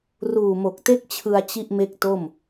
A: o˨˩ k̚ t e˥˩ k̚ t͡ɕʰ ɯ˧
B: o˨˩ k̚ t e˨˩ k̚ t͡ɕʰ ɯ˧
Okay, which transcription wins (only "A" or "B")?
A